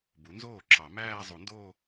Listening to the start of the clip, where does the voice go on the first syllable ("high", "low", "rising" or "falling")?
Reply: rising